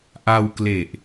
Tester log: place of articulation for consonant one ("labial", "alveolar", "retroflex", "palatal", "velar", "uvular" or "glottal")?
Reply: glottal